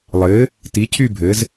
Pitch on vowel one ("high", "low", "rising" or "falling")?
rising